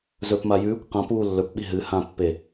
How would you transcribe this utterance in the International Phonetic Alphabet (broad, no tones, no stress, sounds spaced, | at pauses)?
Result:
z ɵ p m a j ʉː kʷ q ã p uː lː ɵ p ɓ i ɦ ɨ h ã pː e